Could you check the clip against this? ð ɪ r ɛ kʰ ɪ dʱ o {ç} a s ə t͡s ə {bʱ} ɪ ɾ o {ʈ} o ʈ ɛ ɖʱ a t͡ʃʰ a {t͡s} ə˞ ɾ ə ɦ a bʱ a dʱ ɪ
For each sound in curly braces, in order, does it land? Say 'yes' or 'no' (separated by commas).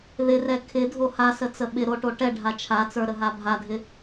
no, no, yes, yes